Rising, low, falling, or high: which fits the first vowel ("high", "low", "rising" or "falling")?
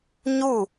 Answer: falling